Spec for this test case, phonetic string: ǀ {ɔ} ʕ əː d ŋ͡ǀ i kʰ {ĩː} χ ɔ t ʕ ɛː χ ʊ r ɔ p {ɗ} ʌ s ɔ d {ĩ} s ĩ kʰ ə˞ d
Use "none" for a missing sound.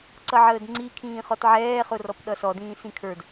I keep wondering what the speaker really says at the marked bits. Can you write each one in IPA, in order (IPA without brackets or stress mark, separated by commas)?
ʌ, ĩː, ɗ, ĩː